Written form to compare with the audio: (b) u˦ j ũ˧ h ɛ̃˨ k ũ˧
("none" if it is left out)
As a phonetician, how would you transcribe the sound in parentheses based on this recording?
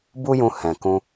b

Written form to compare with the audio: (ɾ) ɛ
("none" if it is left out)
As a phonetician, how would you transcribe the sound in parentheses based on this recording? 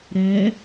ɾ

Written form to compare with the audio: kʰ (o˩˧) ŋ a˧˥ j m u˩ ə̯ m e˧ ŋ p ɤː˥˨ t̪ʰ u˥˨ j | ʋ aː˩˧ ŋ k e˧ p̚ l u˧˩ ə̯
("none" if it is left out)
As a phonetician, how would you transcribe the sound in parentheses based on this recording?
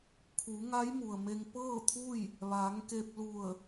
u˩˧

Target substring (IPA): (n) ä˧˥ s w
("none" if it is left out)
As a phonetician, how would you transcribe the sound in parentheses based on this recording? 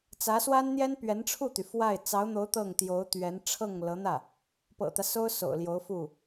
t͡s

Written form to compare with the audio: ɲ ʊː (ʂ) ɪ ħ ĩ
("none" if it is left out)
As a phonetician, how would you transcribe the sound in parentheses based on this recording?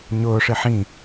ʂ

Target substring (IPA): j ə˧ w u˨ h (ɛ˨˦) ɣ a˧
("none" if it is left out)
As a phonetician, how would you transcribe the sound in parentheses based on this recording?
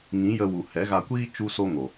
ɛ˨˦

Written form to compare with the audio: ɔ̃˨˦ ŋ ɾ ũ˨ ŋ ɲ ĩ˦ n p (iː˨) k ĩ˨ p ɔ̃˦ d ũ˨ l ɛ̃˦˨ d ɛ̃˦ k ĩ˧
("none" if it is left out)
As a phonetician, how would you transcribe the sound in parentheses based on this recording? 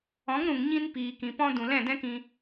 iː˨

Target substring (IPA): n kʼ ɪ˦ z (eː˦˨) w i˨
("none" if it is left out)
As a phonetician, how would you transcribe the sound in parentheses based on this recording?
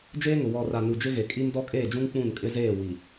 eː˦˨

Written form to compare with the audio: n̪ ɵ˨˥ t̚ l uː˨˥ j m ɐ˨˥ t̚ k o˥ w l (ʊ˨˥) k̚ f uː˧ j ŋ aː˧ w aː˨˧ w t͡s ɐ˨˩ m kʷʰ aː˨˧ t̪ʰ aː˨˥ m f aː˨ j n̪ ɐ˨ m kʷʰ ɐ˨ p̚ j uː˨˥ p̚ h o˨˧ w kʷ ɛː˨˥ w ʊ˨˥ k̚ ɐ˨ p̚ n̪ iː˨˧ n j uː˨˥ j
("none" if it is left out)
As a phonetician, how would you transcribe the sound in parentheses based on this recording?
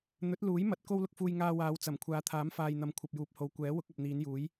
ʊ˧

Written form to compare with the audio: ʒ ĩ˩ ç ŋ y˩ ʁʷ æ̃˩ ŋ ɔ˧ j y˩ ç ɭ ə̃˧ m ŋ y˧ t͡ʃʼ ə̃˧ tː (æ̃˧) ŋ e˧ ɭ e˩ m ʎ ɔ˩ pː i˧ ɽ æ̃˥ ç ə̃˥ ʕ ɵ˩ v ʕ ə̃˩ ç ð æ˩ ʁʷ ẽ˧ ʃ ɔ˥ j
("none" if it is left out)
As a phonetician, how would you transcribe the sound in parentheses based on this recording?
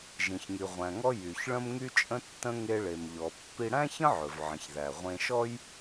ə̃˧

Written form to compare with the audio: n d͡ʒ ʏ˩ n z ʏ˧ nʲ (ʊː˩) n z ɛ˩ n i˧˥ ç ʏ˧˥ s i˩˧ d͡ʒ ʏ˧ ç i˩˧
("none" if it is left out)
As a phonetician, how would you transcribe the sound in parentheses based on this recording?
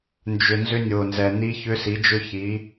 ʊː˩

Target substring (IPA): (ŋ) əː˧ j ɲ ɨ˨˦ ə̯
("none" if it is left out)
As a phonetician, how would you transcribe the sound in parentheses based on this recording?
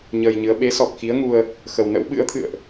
ɲ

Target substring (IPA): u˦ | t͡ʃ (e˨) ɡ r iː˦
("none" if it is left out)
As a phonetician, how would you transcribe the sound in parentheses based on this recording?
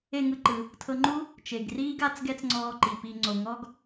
e˨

